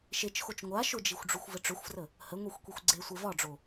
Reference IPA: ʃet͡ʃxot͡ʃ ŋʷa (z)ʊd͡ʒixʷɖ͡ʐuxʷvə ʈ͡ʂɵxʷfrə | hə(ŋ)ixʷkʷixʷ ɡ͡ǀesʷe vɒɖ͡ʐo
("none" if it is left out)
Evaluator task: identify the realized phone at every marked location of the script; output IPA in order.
ʃ, ŋʷ

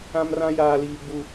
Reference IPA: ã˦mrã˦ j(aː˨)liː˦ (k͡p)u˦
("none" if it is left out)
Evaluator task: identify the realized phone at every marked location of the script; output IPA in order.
aː˦, ɡ͡b

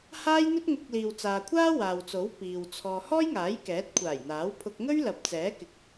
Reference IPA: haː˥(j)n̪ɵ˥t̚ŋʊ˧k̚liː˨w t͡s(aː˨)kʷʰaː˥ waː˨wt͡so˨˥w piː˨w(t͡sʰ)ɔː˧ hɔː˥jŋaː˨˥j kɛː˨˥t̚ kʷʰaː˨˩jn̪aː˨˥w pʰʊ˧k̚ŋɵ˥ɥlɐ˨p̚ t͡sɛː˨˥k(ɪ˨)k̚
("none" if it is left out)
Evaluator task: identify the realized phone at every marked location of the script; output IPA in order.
j, aː˨, t͡sʰ, ɪ˨˥

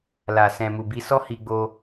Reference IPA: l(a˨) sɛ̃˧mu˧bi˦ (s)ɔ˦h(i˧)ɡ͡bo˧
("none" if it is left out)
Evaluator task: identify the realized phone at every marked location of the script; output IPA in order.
a˨, s, i˧

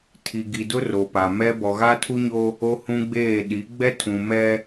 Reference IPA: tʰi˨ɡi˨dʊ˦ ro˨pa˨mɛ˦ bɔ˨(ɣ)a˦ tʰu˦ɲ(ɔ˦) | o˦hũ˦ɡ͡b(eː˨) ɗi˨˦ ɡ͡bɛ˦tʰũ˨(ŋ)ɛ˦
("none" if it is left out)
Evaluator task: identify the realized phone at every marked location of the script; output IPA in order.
ɣ, o˦, eː˦˨, m

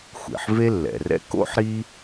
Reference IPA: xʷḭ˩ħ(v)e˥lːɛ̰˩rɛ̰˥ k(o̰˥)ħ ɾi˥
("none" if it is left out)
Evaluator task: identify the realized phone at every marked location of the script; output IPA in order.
v, o̰˥

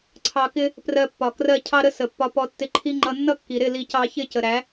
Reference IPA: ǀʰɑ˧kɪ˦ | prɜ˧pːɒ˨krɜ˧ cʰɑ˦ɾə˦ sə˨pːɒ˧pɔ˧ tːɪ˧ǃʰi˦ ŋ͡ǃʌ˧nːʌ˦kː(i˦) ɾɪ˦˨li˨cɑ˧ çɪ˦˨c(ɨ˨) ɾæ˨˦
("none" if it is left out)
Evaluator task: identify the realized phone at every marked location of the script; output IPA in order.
i˨, ə˨

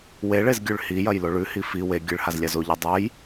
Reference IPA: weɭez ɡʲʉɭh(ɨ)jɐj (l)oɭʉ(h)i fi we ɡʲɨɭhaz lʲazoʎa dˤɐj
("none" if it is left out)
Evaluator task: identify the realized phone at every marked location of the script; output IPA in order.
i, l, h

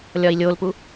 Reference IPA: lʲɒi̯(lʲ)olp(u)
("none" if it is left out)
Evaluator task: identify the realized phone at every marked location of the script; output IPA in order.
lʲ, u

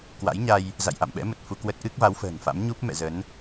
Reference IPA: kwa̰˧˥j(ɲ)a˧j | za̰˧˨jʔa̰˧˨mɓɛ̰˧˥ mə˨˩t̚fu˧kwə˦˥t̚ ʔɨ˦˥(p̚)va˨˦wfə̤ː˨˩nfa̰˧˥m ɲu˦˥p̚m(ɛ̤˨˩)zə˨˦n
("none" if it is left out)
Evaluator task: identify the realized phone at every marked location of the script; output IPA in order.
ɲ, k̚, ɛ̰˧˨

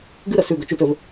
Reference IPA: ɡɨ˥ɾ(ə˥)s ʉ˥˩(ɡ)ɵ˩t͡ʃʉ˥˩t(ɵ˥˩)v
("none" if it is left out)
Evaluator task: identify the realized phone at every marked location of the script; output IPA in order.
ə˧˩˧, ɡ, ɵ˥˩

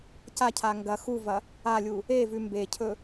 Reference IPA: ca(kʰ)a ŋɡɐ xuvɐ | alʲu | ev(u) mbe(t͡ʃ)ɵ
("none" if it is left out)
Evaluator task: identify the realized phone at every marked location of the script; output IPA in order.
cʰ, ʉ, cʰ

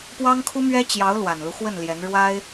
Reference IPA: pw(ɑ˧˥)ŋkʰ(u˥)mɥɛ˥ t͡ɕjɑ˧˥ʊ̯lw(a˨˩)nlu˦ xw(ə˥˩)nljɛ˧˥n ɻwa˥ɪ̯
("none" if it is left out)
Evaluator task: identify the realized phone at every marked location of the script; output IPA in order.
ɑ˥, u˥, a˨˩, ə˥˩

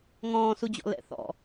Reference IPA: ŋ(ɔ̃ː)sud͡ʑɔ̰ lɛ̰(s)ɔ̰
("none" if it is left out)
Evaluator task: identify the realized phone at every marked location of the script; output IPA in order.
ɔ̃ː, θ

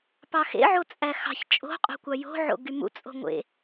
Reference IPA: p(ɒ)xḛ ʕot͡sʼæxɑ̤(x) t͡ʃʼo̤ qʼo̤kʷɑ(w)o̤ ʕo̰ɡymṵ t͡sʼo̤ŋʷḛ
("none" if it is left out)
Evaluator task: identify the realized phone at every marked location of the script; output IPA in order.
ɑ, ç, j

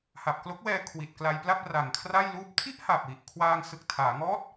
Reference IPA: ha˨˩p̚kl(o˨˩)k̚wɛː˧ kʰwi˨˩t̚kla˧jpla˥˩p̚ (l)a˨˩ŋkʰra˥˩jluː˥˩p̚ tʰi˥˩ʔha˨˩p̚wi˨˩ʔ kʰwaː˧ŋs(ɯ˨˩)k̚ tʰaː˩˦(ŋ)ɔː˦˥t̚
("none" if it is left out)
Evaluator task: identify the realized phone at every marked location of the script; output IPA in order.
o˦˥, r, ɯ˨˩, ŋ

